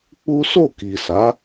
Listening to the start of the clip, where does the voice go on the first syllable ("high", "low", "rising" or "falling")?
high